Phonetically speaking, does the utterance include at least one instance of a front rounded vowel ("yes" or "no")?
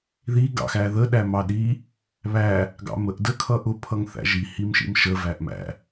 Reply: no